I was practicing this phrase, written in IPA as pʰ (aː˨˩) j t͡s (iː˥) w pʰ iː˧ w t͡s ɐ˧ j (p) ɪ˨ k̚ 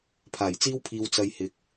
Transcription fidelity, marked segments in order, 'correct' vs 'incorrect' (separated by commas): correct, correct, incorrect